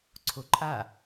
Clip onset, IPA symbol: ǀʰ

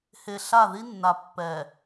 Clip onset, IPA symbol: h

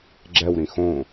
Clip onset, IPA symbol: ɡ͡ǁ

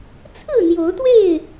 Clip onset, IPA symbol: t͡sʰ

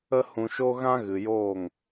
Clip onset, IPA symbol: ə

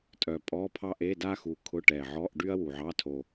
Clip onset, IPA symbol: tʼ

